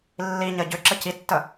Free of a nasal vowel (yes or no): yes